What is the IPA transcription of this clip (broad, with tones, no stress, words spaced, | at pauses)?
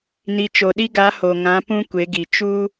ni˨t͡ʃo˨ɗi˦ɡa˨˦ ho˨ŋã˨˦ pũ˦ kʷe˨˦ɡi˨ t͡ʃu˦